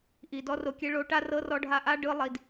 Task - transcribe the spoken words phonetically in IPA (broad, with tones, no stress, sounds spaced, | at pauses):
ʔ i˨ d ɔ˦ r o˧ kʲ ɛ˦ ɭ o˨˦ ʈ a˦ r ɤ˦ r ɔ˦ ɖʱ a˦ ʔ a˦ ɖ ɯ˧ lˠ i˨ d